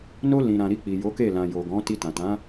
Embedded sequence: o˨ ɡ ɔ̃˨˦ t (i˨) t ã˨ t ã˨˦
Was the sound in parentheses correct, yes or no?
no